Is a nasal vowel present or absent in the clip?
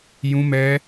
present